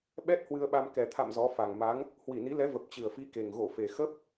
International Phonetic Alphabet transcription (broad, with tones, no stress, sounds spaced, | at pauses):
ɓ ɛ˦˥ t̚ h w ɨ˧ ə̯ ɓ a˧ m k ɛ˨˩ t̪ʰ a̰˧˨ m z ɔ˨˦ f a˨˩ ŋ m a˨˦ ŋ | h w i˧˩ n i˨˦ l ɛ˨˦ v ə˨˩ p̚ t͡ɕ ɨ˨˩ ə̯ f i˨˦ k e˨˩ ŋ ɣ o˧˩ f e˨˩ x ə˦˥ p̚